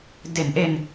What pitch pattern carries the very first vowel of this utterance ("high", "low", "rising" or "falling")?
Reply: low